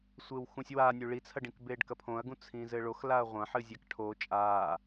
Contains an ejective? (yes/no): yes